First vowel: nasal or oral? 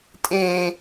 nasal